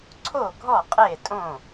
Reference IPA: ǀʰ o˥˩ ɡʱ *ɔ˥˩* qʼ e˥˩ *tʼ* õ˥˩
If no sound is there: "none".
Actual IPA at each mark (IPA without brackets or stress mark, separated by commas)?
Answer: ɔ˥˩, tʼ